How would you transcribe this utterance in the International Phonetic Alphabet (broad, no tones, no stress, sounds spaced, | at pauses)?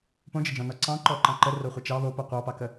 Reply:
p õ d͡ʒ ə d͡ʒ ɔ̃ n ɔ ǀ ɑ̃ ǃ ɔ ǃ ɑ̃ ǃ ə r o χʷ ə t͡ʃ ɑ β o p o qʷ ɑ p ɑ k ə